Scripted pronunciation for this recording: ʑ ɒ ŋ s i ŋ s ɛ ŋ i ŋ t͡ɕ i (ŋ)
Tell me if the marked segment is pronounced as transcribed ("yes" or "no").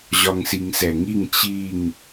yes